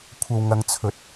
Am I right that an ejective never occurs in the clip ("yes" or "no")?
yes